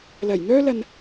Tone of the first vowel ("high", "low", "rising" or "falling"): low